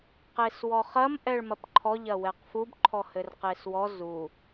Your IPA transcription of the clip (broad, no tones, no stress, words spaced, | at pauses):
qeswɔχɐm ʔɛɭmɐpǃʰɔ ʎɐwɛqfub ǃʰɔhɘrqeswɔ zu